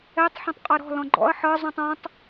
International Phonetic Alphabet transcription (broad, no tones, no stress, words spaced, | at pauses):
ɛtˤ ħɔ̃tˤqʼɤɾɔ̤ lɔ̃ɡ͡ǃɔ̰ɐ̯ ħɤ zˤũtˤɔ̃tˤ